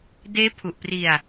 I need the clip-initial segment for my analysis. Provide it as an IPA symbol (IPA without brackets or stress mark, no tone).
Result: d